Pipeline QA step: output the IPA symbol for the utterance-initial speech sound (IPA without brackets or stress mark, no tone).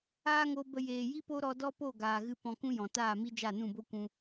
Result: aː